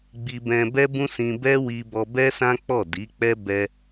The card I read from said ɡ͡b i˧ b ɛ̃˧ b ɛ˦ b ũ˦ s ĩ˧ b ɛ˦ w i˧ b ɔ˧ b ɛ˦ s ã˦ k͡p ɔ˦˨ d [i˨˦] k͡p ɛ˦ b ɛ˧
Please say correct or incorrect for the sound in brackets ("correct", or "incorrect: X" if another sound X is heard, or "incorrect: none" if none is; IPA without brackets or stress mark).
correct